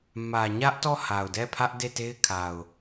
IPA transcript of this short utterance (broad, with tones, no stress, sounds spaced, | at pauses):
m ä˨ ɲ ä˦ ʔ t ɔ˦˨ h a˨ ʊ̯ d ɛ˦˨ pʰ ä˦ ʔ d e˦˨ t e˦ ɪ̯ kʰ a˨ ʊ̯